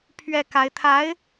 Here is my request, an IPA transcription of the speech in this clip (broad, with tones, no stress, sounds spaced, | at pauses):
pʰ ɥ ɛ˥˩ k a˧˥ ɪ̯ t̪ʰ a˧˥ ɪ̯